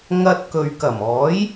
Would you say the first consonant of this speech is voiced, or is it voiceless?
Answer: voiced